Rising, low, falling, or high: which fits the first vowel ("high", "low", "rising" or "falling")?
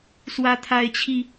high